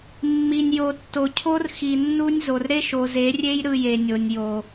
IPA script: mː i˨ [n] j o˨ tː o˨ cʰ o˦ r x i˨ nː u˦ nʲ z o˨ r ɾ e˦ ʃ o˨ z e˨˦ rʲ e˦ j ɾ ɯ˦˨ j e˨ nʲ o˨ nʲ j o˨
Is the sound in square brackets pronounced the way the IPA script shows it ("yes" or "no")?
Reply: no